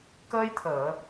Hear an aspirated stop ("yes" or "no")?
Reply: yes